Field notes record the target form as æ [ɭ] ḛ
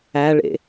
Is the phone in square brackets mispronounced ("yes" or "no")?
no